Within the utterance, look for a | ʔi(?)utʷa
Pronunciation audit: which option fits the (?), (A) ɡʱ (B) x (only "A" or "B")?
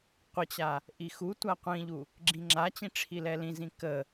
B